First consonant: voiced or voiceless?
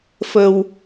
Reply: voiceless